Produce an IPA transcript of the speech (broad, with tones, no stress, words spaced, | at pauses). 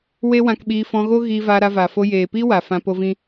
we˦wã˧kɓiː˧ fɔ̃˧ɣo˦ ɣiː˧vaː˧ɾa˧ va˨fo˧jeː˨piː˦ wa˨fã˧po˧vĩ˦